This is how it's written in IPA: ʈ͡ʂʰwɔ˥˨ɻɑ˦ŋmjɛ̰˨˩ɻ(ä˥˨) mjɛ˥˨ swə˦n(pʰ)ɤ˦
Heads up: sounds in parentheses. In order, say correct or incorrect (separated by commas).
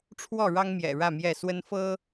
correct, incorrect